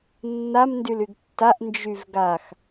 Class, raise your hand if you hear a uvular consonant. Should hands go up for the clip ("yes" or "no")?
no